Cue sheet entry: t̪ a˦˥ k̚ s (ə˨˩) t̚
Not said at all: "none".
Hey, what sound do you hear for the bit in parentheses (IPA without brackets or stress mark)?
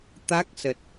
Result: ə˨˩